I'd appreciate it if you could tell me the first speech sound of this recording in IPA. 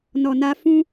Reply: n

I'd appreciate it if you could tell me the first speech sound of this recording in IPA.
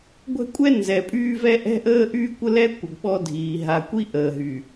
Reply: ɡʷ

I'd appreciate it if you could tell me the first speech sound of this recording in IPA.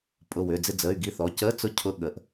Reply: pʼ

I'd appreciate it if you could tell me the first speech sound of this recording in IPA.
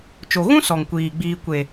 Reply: t͡ʃ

